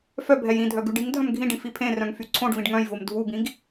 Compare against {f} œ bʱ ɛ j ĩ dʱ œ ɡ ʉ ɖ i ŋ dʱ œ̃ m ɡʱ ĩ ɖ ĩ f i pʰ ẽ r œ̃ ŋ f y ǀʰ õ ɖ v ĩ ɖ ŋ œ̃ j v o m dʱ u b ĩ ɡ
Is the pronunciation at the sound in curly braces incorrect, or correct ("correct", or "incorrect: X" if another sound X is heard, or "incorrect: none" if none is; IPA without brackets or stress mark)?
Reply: correct